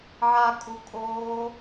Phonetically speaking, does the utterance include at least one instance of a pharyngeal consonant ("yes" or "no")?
yes